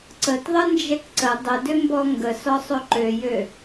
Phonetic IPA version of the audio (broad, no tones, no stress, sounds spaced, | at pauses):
ǀ ə t ðˤ ə n d͡ʒ ɛ k ǀ ə dˤ ə d ʏ m b ɔ ŋ ɡ ə s ɔ sˤ ɵ ǃ ø j ø